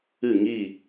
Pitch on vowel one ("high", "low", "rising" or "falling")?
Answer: falling